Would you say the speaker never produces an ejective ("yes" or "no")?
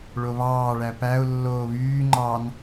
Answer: yes